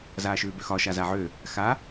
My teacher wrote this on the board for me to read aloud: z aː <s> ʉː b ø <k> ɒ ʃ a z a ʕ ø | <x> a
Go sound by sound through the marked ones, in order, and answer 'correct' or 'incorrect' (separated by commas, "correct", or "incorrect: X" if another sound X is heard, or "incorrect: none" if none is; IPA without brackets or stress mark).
incorrect: ʃ, incorrect: x, correct